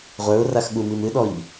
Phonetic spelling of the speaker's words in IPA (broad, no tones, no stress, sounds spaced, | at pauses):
ʁʷ ə˞ ʊ̯ r a x ɠ u m i m ɨ ɗ ɔ ʎ